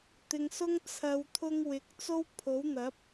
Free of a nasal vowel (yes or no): yes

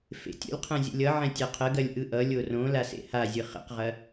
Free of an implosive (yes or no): yes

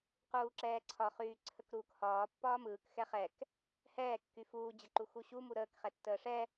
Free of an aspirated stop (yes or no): no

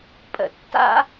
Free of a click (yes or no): yes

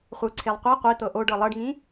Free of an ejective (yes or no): yes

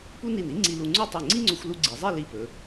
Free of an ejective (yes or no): yes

